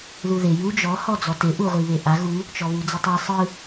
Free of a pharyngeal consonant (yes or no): yes